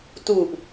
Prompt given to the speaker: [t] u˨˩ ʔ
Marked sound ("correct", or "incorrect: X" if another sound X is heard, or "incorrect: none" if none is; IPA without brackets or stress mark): correct